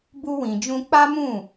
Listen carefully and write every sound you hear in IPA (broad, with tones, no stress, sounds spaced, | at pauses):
b u˦ w ĩ˧ d͡ʒ ũ˦ k͡p a˦ m ũ˦˨